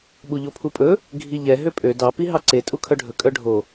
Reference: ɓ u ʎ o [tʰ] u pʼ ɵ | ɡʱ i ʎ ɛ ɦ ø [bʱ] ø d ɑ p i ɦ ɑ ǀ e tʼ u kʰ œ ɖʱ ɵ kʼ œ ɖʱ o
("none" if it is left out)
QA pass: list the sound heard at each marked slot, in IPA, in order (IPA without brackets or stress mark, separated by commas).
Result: pʰ, pʼ